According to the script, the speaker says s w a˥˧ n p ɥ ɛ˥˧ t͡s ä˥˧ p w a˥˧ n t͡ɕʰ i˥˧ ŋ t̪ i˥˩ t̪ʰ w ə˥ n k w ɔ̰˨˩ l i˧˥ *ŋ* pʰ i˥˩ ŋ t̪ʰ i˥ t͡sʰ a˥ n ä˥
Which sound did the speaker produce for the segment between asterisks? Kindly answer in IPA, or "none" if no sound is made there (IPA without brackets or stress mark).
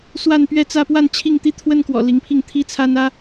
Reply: ŋ